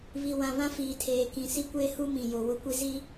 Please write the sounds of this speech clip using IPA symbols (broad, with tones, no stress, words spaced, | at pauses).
βi˨wã˨βã˦ fiː˨tʰeː˨ kĩ˨ si˦kʷeː˦hu˦mĩ˨ jo˨wʊ˦ kʷi˦zi˦